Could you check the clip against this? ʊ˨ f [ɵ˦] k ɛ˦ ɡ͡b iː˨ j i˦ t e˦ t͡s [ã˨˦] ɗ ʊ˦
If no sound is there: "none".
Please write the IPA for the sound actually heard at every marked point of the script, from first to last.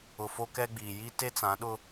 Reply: o˦, ã˨˦

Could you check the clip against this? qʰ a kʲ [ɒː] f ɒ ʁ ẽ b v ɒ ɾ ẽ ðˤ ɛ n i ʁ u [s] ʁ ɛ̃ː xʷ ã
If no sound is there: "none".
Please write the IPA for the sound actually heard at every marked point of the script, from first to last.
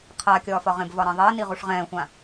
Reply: ɒː, ʂ

